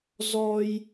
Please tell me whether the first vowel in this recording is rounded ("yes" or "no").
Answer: yes